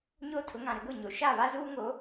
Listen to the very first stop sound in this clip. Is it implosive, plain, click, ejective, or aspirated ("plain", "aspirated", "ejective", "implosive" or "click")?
aspirated